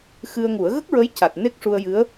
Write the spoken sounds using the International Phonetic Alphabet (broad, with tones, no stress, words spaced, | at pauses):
xɨ˧ə̯ŋu˨˩˦ə̯ ɣə˦˥k̚ɹə˧˥j ca˨˩t̚ ne˦˥k̚ʂu˧ə̯ jɨ˧˥ə̯